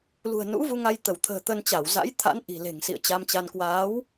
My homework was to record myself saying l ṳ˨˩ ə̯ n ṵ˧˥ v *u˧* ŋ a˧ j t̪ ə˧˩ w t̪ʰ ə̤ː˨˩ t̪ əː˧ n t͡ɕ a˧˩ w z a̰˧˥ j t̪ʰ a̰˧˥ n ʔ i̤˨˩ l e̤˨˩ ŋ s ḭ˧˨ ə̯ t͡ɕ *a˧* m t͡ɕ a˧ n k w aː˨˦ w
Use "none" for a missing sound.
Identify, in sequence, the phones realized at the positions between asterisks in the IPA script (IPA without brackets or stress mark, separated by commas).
u˧, a˧